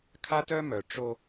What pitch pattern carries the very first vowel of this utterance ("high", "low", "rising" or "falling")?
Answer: high